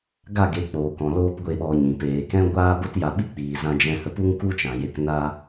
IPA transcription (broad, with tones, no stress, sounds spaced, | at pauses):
ɡ a˦˨ ɡ e˨˦ k͡p oː˨ k ɔ̃˨ l oː˦ p ɡʷ e˦˨ ɓ ɔ˧ ɲ ĩ˨ p eː˧ k ɛ̃˧ ɡʷ aː˧ b o˦ t j a˧ ɓ i˦ k͡p iː˨ z ã˧ d͡ʒ ɛ̃˧ h ə˧ p u˦ ŋ k u˦ t͡ʃ ã˨ j e˧ k n a˦